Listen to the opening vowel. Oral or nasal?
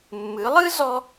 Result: oral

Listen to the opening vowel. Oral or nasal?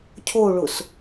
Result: oral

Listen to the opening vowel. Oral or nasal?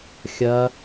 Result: oral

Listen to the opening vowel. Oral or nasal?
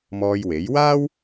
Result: oral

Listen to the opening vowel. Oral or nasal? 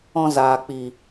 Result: nasal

